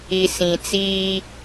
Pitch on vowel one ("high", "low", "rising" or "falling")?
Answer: low